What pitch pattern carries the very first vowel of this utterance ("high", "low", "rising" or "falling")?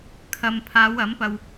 low